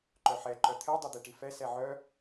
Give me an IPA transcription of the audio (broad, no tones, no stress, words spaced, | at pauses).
ǃœħɛ ǃœt̪ʰɛ dˤed̪eʈifɛ sɛʕœ